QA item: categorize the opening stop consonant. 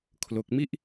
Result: aspirated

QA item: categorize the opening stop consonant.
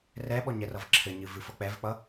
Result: implosive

